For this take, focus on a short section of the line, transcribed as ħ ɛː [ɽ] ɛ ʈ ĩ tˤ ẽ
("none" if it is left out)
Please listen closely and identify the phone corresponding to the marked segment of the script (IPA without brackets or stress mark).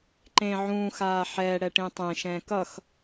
ɽ